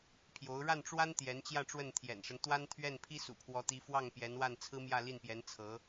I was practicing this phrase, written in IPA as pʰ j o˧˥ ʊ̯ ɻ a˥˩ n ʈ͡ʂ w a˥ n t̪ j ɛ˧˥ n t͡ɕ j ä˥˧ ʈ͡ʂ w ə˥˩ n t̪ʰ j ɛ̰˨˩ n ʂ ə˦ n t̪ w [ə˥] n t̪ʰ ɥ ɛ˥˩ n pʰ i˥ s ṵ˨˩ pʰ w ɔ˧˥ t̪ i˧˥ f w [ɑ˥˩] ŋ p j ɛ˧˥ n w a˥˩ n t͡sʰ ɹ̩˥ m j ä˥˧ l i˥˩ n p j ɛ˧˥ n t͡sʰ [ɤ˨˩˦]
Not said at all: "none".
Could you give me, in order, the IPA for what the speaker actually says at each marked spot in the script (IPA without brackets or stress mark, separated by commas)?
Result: a˥, ɑ˥˩, ɤ˧˥